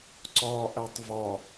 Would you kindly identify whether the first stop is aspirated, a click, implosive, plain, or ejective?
click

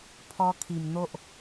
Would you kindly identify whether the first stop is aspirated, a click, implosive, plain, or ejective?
aspirated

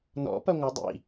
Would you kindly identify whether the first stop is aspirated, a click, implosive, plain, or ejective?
plain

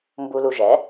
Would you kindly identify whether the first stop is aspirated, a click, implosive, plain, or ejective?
plain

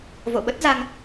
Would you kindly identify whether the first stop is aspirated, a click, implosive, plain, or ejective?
implosive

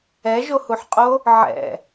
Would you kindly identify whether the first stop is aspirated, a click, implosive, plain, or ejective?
ejective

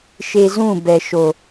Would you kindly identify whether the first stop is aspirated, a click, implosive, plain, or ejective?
plain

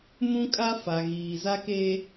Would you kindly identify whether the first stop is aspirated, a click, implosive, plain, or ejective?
ejective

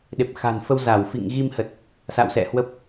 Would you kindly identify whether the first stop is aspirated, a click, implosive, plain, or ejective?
implosive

